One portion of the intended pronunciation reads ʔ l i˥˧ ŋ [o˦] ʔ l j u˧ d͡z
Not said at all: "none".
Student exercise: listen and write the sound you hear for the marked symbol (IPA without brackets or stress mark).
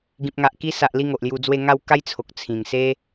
o˨